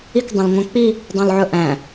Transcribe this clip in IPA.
ik dˤõlŋʷæ̃k͡pi | dˤõlʕɵʔæ̃

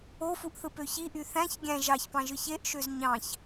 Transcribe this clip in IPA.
ofuʔθɯ pøçiʔy θæ̃ç ɡʲæ̃ ʒɑçpɑ̃ʒɯç eʔʃøz ɲɑ̃ç

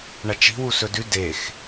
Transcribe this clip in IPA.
ɳɐt͡ʃi̤wu sɵdʉ dex

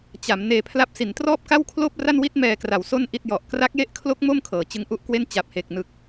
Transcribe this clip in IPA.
t͡ɕa˩˦m neː˧pʰla˥˩p̚ si˩˦ntrɔː˥˩p̚ka˥˩wkʰloː˥˩p̚ ra˥˩nwi˥˩t̚ mɛː˧kra˨˩w so˧n ʔi˥˩t̚jɔ˨˩ʔ kra˦˥k̚je˦˥ʔkʰlo˦˥k̚ mo˥˩m kʰɤː˩˦t͡ɕɯ˦˥ŋʔu˦˥ʔkwe˥˩n t͡ɕa˨˩p̚he˨˩k̚nɯ˨˩k̚

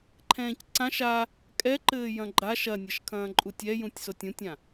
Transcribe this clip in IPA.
ǃʰɛ̃ːcǀãʃ a | kʼɛǃɘː jɐ̃ɡ͡ǃa ʃɐnʲɐʃkʰɐ̃ː ǃʼutʲɛ jũtʲsotʲũtʲã

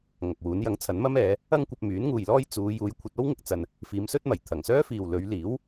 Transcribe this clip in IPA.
ŋɐ˨k̚wuː˨˥n jɐ˨˥ŋt͡sʰɐ˨˥nmɐ˥m ɛː˨˧ | ɐ˥ŋkʷɐ˧p̚ myː˨˥nŋuː˨jlɔː˥j t͡suː˨˧ juː˨˧jkʷʰɐ˧t̚o˥wŋɪ˨k̚ t͡sɐ˧n | fiː˨˧msɵ˥t̚mɐ˨˩j t̪ʰɐ˨˩ŋsœː˥fiː˨w lɵ˨˧ɥliː˨˥w

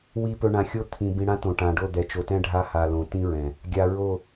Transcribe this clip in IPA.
wi˨ pɵ˨ ɳã˨xʲo˦ t̪ʰĩ˨ bĩ˨ɽã˦ tõ˨ʈã˨ɖo˦˨ d̪ɛ˨t͡ʃo˨tɛ̃˦ ɖʱa˦ha˨lõ˨ tĩ˦ɹɛ̃˨ | ɡʲa˨ ɹo˦˨

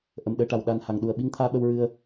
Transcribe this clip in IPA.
ʔə˨˩mɗəː˧ʈa˨˩w ɗa˧n ha˨˩ŋɗu˨˩ə̯ ɓi˧˥ŋt̪ʰaː˧ɓə˧w ɹɨ˧ə̯

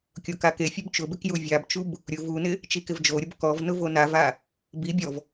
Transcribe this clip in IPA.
kʲokakefʲub t͡ʃʊbɪk juvʲabt͡ʃub | ɾʲʊ vunɪ | t͡ʃikɪvd͡ʒoɾʲʊb kɔv nʊvonava | bibʲɔv

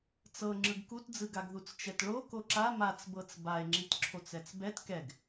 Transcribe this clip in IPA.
t͡sɤ ŋ͡ǁɯɡkutd͡zɯɡaɡ ðut͡st͡ʃɛtɭo koǁa mat͡sbɤt͡s bae̯ŋ͡ǁitǁʰot͡s ɛt͡sbɛt kɛɡ

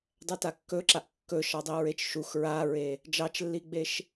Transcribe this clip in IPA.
dˤɛtakːɵǁaʔ kːɵʃɑdˤiɹet͡ʃ ʃux ɹaɹe | d͡ʒɑt͡ʃlːiɡ͡beʃ

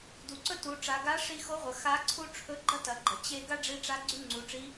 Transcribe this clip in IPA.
du˩ǀɵ˥tu˩˧ ʈ͡ʂa˩˧ɡa˧˥ ʂi˧xo˧˥ʁʷɐ˩ xa˧˥ ǀʰu˥ ʈ͡ʂʰɵ˧˥ɡ͡ǃɐ˥tɐ˩˧ ɡ͡ǃɐ˩t͡ɕe˥ ɡa˥ɖ͡ʐi˧ʈ͡ʂa˧˥ ɡ͡ǀy˥ŋ͡ǀu˩˧ʈ͡ʂi˧˥

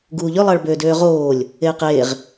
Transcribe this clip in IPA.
ɡuːʎø lˠɑɭbøːdøːʁoːlʲ | eːqeːʁ

